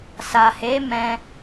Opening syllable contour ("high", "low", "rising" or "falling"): low